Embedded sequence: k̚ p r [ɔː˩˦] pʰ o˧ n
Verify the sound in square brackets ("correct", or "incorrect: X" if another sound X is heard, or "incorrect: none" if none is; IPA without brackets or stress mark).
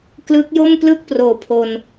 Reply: incorrect: oː˩˦